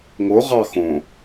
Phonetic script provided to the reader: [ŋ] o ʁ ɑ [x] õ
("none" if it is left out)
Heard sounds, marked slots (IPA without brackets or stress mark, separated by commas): ŋ, x